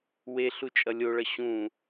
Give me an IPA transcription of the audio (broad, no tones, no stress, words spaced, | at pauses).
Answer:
weɬu t͡ʃʼʌlʲoɭʌ ɕũ